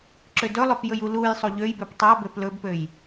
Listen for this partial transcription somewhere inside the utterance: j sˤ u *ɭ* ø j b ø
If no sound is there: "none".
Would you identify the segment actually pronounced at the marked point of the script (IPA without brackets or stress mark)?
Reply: ʎ